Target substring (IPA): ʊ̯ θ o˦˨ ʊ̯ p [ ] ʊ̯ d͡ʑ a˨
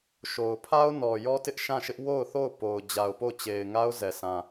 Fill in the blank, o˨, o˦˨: o˨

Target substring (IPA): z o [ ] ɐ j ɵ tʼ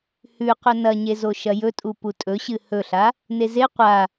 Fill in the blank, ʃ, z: ʃ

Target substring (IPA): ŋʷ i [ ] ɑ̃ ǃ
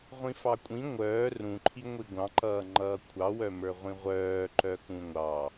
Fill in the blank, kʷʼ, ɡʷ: ɡʷ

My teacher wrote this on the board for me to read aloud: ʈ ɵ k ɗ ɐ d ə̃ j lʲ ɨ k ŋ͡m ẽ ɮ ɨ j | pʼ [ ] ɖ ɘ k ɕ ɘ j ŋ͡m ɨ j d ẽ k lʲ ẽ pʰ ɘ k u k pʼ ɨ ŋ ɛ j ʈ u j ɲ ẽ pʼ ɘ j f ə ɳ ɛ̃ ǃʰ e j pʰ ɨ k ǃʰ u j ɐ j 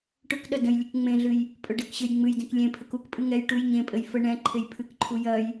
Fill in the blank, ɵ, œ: ɵ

